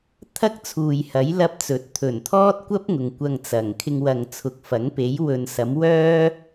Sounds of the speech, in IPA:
t̪ʰ ɐ˥ k̚ t͡sʰ uː˨ j h ɐ˨˥ j l ɐ˥ p̚ t͡s ɵ˨˥ t̚ t̪ʰ ɵ˨˩ n t̪ʰ ɔː˥ t̚ kʷ ɐ˥ p̚ ŋ ʊ˨ ŋ kʷ ɐ˧ ŋ t͡s ɐ˨˩ ŋ kʰ ɪ˧ ŋ w ɐ˨ ŋ t͡sʰ ʊ˨ k̚ f ɐ˨˥ ŋ p e˨˥ j w ɵ˨ n s ɐ˨˥ m w œː˥

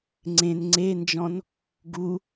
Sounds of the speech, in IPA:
ŋ͡ǀ ẽ n ŋ͡ǀ e n d͡ʒ ɔ̃ n | ɡ u

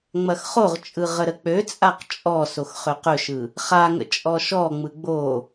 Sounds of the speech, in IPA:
ŋ͡m ɐ x χ o ʁ t͡ʃʼ ɯ ʁ ə ɾ ə k͡p ø t͡sʼ a q t͡ʃʼ ɔ s o x χ ø q ɵ ʃ ɯ | χ a ŋ ə̰ t͡ʃʼ ɔ ʃ ɔ ŋ͡m ɯ ɡ͡b o

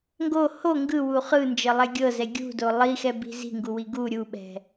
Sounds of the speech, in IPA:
ŋ ɡ o h o ŋ ɡ ɯ w u χ ɯ n d͡ʒ ɤ lˠ ɛ ɡʲ ɤ z ɛ ɡʲ ṳ d o lˠ i x ɛ b i̤ z i̤ ŋ ɡ u w i ɡ u ɾʲ u ɓ ɛ̤

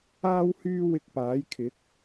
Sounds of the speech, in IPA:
aː˥ w h yː˥ w ɪ˧ k̚ p aː˨˥ j kʰ ɪ˨˥ k̚

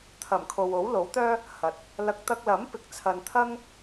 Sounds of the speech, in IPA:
t̪ʰ ɐ˨˩ m kʰ o˨ w o˨˥ w l o˨˥ w t̪ œː˥ | h ɐ˨ t̚ | l ɐ˨˥ k̚ t̪ ɐ˧ k̚ l ɐ˨˥ m p ɪ˨ k̚ t͡sʰ ɐ˨ n t̪ʰ ɐ˥ ŋ

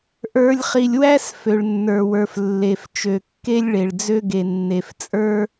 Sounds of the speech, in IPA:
ʔ ə˞˨ lʲ χ i˨ lʲ w æ˦ s f ø˨ ɭ nː ə˞˨ w ə˞˨ f lː e˨ f t͡ʃ ø˨ kː e˦ lʲ ɭ e˨ ɭ d͡z ø˦ ɡ e˨ nː e˨ f t͡sʼ ə˞˦

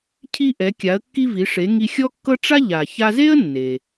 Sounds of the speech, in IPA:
cʰ i˧ ʔ ɛ˩˧ kʲ a˩˧ ə̯ kː i˧ v i˩˧ ʂ e˩˧ ŋ i˧ xʲ ɔ˥ kː ɤ˥ ʈ͡ʂ a˥ ʎ a˩ ç a˧ z e˥ ə̯ nː e˩

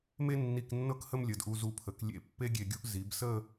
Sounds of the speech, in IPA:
m e˥ nː i˧˩ k nː ɤ˥˧ k h ə˥˧ m lʲ ə˩˧ d ʔ u˧ z u˧ pʰ ə˩˧ k lʲ ḛ˧ pː e˥ ɡʲ e˧˩ ɡʲ u˥ ʔ z i˩˧ b s ə˥˧

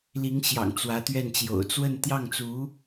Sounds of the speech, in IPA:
l i˧˥ ŋ ɕ j ɑ̰˨˩ ŋ t͡s w ä˧˥ t̪ ɥ ɛ˥˩ n t͡ɕ j o̰˨˩ ʊ̯ t͡s w ə˥˧ n t̪ j ɑ˥˩ ŋ t͡s u˧˥

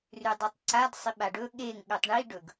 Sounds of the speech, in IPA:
r ʉ dˤ ʉ tˤ ǀ a d sˤ i ɓ a ɖ ɵ ɠ e ŋ ɠ ʉ tˤ ɳ i ɖ ɵ ɡ

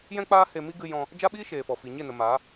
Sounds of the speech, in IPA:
j ɛ̃˦ k͡p aː˦ h e˧ m i˦ ɡ ɨ˧ j ɔ̃˧ | d͡ʒ a˦ ɓ iː˦ ʃ eː˨ f ɔ˨ f i˨ ɲ e˦˨ n ə˨ m aː˨˦

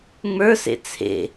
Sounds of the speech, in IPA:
ŋ͡m ə˞ s ḛ t͡sʰ ḛ

